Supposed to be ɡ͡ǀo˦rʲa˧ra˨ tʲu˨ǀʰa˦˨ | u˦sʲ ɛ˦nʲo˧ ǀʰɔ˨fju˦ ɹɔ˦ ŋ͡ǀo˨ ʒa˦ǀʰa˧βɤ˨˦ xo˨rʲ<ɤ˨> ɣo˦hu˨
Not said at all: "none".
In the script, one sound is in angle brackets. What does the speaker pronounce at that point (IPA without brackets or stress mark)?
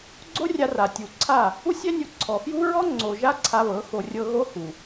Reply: ɤ˧